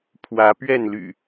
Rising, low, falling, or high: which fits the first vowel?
rising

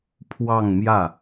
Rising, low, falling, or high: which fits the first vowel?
falling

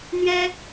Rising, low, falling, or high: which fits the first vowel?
high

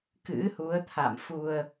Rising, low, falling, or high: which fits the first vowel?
rising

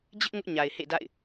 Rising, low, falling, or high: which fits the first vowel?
high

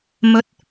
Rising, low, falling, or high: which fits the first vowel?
rising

